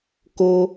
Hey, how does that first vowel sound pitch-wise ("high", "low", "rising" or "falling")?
high